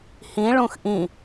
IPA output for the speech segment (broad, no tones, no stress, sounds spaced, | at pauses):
h ĩ ɭ ũ x ʔ ĩ